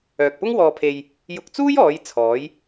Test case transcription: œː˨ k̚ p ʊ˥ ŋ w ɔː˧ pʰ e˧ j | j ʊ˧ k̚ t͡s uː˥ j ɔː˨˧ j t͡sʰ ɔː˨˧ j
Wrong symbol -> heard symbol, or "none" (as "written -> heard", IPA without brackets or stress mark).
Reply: none